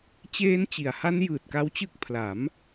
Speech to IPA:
t͡ɕ eː˦˥ n t͡ɕ i˩˦ a̯ h a˦˥ n j ɯː˨˩ t̚ k a˦˥ w t͡ɕ ɯ˦˥ k̚ pʰ l a˩˦ m

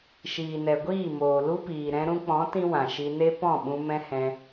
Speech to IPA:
ʃ iː˨ n ɛ˨ ɡʷ iː˦˨ m oː˨ l u˦ p iː˨ ɾ ɛ̃˧ ɾ ũ˧ k͡p ɔ̃˨˦ t ĩ˦ w ã˨ ʃ i˧ n e˦ p ɔ̃˦˨ ɓ ũ˧ m ɛ̃˦ h ɛ̃˧

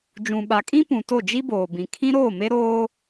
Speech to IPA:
d͡ʒ ũ˨ ɓ a˨ kʼ ĩ˦ p ũ˨ t o˦˨ d͡ʒ i˦ b oː˨ b ĩ˨ kʰ ĩ˦ ɾ oː˦˨ m e˦ ɾ oː˦

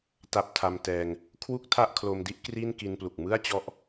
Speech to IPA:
t a˦˥ p̚ tʰ a˧ m t ɛː˧ ŋ | kʰ w u˥˩ k̚ tʰ a˥˩ ʔ kʰ l o˧ m d i˥˩ ʔ k r i˥˩ n k i˧ n p l u˨˩ k̚ m ɯ˥˩ a̯ t͡ɕ ɔ˦˥ ʔ

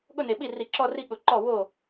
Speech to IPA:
ɠ ʊ˥˧ n e˨˩ ɓ i˥˩ r i˧˩˧ ǁ ɔ˥˧ r i˥˧ ɠ ʊ˧˩˧ ǃ ɔ˥˩ w o˥˩

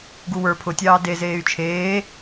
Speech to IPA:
ɡ u w ə˞ pʰ ʊ tʲ ɑː d e z eː y̯ t͡ʃʰ eː

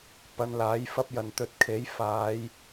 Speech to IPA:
p ɐ˧ n l aː˨˥ j f ɐ˥ p̚ j ɐ˨ n t̪ ɵ˧ t̚ kʰ e˨˥ j f aː˨˧ j

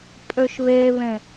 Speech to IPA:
pʼ ø ʃ β e β ẽ

